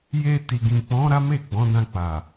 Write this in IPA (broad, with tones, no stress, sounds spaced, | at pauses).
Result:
j e˧ t i˨ ɡ ĩ˨ k͡p ɔ̃˨˦ ɾ a˦ m e˦˨ ɡ͡b ɔ̃˨˦ d ã˧ k͡p a˨